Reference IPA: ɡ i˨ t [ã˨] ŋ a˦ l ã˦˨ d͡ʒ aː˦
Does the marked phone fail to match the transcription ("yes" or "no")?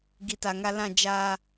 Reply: yes